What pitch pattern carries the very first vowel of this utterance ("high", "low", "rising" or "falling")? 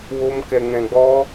high